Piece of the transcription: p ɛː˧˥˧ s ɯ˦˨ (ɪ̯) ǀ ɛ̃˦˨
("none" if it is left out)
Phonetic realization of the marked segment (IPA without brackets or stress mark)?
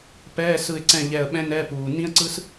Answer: ɪ̯